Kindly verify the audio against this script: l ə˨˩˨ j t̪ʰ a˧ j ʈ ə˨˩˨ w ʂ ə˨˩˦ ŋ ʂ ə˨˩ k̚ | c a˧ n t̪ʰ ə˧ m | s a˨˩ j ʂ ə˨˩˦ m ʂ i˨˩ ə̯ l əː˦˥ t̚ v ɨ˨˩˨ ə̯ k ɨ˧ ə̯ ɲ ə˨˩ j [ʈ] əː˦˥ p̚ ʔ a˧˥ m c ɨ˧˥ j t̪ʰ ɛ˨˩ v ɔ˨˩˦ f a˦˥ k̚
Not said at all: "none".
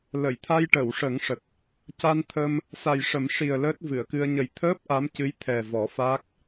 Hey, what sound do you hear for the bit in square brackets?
t̪ʰ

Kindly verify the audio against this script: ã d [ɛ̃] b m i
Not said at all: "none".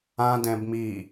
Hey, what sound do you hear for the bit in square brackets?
ɛ̃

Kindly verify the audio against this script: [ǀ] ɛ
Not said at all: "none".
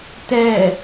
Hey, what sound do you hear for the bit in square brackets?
t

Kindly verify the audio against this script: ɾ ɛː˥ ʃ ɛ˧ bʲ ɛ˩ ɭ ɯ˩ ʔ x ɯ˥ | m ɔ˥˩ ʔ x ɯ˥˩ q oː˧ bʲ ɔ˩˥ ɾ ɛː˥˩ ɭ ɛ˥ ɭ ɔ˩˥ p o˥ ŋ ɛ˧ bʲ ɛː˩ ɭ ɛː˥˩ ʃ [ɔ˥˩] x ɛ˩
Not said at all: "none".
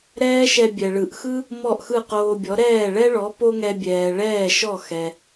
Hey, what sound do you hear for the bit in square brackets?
ɔ˥˩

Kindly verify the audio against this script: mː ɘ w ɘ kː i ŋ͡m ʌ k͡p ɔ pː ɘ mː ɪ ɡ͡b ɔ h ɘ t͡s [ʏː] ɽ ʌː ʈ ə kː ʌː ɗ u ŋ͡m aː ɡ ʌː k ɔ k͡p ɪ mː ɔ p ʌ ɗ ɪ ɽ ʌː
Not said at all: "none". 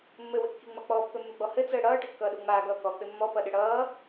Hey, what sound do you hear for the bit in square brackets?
əː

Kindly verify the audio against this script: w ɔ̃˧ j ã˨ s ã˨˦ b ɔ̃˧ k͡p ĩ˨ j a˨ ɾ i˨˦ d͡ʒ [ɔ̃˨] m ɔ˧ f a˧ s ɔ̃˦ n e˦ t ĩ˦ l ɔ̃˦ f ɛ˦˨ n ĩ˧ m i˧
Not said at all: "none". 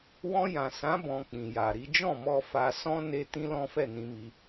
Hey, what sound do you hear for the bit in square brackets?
ɔ̃˦˨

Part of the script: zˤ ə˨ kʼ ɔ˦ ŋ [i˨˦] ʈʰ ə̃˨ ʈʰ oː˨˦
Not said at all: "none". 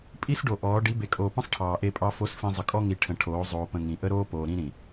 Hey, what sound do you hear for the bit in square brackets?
i˨˦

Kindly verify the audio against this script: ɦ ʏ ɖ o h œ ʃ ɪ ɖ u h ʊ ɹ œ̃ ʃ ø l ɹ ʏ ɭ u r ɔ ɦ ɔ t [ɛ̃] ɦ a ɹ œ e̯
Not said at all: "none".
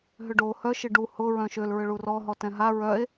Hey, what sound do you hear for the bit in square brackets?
ɛ̃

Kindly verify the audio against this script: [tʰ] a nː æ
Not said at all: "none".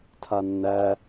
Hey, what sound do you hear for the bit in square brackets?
tʰ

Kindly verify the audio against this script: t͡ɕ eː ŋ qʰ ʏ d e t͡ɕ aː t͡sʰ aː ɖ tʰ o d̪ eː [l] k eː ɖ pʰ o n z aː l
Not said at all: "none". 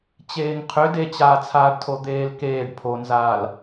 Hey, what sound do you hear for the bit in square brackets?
l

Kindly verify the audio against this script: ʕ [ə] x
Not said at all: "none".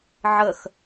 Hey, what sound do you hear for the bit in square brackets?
ə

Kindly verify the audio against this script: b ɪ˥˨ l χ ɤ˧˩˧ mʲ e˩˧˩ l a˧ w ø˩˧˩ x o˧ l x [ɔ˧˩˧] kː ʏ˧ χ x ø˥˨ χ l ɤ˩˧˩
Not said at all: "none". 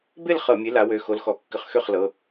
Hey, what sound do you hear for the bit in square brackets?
ɔ˧˩˧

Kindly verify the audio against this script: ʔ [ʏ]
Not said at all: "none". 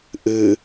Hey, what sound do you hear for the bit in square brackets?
ɨ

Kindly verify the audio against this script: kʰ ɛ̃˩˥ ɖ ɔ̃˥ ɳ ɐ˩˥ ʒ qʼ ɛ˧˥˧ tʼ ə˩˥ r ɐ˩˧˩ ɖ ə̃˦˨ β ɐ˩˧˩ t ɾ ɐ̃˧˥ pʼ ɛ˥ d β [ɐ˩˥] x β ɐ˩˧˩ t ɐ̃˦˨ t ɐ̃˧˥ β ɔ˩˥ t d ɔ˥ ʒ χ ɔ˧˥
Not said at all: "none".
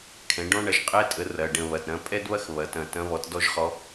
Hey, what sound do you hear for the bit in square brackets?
ɐ˥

